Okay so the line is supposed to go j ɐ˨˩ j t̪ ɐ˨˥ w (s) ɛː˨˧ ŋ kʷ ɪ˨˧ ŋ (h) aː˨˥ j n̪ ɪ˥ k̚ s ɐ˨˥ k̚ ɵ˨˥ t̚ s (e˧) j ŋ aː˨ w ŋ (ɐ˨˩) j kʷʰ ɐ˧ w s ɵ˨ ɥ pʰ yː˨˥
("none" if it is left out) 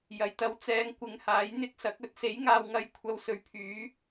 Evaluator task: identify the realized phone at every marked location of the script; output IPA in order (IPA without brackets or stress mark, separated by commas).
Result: t͡s, h, e˨˥, ɐ˨˧